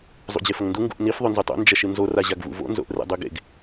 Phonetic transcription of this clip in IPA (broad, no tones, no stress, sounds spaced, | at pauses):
zˤ ṵ d͡ʑ e f ɐ ŋ n d u ŋ ɡ ṵ ʔ n i f ðˤ ɵ n z ʉ tˤ o̰ n d͡ʒ ɐ ʃ ɨ n z o r a ʑ a ɡ v ṵ v o̰ n z o̰ ʔ r ḛ dˤ ʉ ɡ ḛ ɡ